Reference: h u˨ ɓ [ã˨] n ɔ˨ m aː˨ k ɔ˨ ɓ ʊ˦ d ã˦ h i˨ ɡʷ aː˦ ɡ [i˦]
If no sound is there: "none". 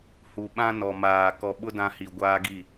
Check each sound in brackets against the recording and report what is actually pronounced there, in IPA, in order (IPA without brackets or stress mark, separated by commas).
ã˦, i˦˨